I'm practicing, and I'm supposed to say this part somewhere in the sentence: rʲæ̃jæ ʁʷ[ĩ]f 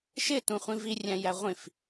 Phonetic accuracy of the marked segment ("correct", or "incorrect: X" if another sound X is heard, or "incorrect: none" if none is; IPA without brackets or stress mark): correct